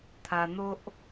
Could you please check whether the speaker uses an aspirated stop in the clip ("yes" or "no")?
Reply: yes